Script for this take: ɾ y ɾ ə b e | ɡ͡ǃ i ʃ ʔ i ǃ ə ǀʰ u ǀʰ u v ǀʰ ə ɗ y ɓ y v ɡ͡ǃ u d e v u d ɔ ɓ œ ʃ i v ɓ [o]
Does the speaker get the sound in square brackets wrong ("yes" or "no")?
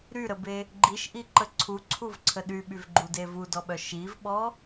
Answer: yes